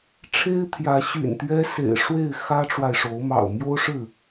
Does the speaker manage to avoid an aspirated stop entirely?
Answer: no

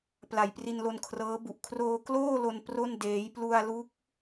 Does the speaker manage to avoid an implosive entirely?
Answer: yes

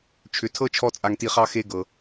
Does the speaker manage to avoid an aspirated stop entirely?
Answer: no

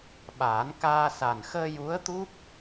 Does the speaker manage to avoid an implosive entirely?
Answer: no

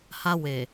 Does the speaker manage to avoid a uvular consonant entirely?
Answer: yes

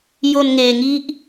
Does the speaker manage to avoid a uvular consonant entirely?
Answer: yes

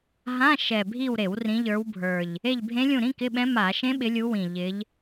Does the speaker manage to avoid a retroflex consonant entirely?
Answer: yes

